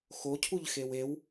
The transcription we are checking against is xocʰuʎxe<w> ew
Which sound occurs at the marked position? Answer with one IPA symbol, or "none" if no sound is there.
w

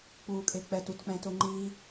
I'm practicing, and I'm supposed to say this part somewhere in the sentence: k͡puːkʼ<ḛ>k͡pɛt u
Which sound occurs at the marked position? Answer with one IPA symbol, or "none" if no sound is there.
e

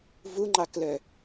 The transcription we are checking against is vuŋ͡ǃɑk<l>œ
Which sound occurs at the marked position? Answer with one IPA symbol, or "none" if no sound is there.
l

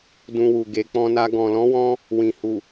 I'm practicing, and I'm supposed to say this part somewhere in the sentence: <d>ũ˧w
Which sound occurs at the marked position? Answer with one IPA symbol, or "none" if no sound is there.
d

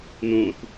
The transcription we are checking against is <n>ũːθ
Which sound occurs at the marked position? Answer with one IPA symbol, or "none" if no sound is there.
n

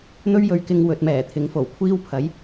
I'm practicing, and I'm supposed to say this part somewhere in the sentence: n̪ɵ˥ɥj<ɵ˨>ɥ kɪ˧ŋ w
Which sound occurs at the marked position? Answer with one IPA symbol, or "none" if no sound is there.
ɵ˨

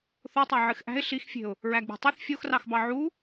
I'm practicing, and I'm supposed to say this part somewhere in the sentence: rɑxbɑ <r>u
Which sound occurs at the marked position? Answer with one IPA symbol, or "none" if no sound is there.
ʕ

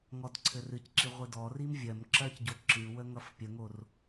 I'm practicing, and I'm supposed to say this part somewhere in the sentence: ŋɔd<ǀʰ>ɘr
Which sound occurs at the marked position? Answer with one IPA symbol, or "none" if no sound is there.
ǀʰ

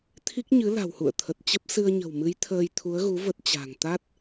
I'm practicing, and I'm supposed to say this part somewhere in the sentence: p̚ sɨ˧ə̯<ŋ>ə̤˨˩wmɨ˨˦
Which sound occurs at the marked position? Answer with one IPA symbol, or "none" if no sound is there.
ɲ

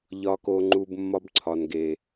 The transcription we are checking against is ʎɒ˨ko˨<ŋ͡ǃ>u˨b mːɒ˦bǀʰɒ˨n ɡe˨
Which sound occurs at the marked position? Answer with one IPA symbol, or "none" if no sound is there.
ŋ͡ǃ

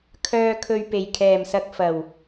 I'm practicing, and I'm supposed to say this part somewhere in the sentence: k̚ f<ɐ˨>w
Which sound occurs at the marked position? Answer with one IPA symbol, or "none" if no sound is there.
ɐ˨˩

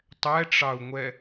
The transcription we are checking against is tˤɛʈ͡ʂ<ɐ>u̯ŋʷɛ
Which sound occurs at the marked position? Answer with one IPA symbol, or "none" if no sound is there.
ɑ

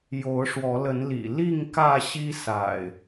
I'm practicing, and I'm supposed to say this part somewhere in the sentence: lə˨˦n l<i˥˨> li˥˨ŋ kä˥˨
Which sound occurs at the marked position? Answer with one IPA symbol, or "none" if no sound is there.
ḭ˨˩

